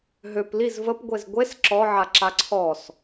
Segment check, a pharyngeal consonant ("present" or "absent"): present